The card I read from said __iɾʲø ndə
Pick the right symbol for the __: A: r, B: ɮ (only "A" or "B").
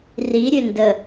A